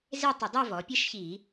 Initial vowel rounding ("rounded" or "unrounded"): unrounded